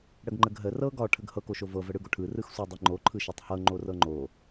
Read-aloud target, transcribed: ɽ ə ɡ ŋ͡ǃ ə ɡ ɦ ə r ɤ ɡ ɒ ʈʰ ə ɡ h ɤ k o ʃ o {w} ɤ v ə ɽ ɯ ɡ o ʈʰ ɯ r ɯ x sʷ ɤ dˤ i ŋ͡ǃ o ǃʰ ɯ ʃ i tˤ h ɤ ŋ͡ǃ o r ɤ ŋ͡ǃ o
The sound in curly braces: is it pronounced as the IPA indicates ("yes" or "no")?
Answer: no